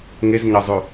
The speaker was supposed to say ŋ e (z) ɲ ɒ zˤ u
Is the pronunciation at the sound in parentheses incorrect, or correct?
correct